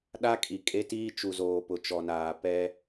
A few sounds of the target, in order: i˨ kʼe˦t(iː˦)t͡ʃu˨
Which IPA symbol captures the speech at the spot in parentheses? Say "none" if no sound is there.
iː˦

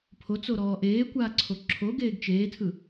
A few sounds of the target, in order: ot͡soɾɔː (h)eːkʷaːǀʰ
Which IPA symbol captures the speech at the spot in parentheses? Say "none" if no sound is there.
ʔ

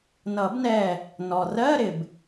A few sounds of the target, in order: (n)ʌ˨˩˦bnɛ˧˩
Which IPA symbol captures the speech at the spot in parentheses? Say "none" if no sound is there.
n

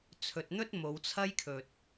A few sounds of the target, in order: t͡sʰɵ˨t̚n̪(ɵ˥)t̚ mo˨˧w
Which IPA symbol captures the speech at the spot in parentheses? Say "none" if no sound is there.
ɵ˥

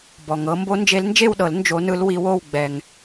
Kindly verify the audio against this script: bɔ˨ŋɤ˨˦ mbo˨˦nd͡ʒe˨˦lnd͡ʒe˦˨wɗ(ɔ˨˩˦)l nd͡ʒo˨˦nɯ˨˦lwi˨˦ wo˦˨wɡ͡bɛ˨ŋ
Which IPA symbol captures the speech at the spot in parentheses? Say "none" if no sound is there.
ɤ˨˩˦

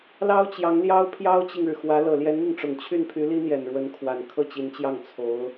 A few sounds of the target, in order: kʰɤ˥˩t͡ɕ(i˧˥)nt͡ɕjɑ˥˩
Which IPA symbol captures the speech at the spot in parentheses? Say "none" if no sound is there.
i˧˥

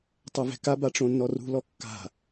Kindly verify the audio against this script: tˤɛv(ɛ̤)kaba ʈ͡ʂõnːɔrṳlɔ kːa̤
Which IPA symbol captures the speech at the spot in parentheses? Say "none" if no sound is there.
ɛ̤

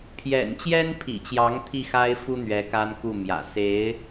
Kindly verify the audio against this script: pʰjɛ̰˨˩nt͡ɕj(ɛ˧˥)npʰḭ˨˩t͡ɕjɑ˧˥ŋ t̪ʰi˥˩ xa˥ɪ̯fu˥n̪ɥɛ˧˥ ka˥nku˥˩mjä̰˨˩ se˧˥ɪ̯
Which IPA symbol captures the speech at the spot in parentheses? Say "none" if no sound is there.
ɛ˥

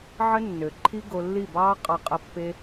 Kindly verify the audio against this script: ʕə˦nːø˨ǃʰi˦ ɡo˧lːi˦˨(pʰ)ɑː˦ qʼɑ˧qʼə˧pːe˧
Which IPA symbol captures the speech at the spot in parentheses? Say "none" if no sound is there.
b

